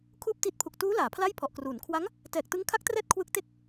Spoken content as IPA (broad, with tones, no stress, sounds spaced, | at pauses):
kʰ uː˥˩ p̚ t i˦˥ t̚ pʰ u˨˩ k̚ t uː˦˥ l aː˩˦ pʰ l a˥˩ j pʰ ɔ˨˩ ʔ k r uː˩˦ n kʰ w a˦˥ ŋ | t ɛː˨˩ k̚ t ɯ˦˥ ŋ kʰ a˦˥ k̚ t r ɛː˦˥ t̚ kʰ w ɯ˦˥ k̚ t e˥˩ k̚